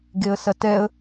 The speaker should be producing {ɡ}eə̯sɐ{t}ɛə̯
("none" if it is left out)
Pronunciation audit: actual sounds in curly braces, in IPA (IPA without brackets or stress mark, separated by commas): ɡ, t